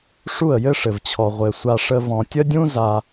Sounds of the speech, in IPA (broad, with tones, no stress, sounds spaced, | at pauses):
ʂ u˦˨ ə̯ j ɘ˦ ʂ ɘ˨ v t͡ɕʰ ɔ˨ ʁʷ ɘ˨ sʷ a˧ ʂ ə˧ v ɔ̃˨ tʲ ə˦ dʲ ũ˦ z a˧